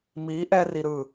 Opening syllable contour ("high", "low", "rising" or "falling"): rising